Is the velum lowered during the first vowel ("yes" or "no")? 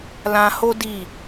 yes